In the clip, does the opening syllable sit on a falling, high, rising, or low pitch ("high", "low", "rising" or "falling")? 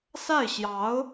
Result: falling